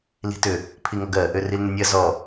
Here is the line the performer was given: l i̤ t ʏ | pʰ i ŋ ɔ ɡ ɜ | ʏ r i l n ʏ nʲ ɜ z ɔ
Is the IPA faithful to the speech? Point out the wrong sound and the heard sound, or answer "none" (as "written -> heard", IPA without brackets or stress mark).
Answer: none